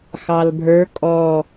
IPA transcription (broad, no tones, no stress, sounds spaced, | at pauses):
x ɑ l bʱ ə˞ kʼ ɔ